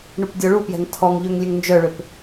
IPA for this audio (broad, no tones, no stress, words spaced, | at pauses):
ɳupdʲɔɭupjɛ̤ŋ tʰɔŋ ʎøŋlʲøŋnd͡ʒœɭøp